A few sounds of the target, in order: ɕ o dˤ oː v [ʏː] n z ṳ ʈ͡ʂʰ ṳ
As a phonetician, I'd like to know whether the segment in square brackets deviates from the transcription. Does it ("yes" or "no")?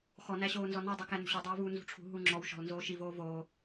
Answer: yes